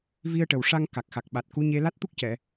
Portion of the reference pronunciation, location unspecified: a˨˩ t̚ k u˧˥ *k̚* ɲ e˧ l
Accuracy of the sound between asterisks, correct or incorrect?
incorrect